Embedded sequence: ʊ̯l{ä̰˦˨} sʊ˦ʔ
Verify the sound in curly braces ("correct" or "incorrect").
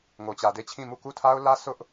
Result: incorrect